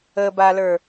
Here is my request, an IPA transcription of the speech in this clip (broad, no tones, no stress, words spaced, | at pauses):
əbalə˞